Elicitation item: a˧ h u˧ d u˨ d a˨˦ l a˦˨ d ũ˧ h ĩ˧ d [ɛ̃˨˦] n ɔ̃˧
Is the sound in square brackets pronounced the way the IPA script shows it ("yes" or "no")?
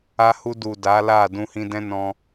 no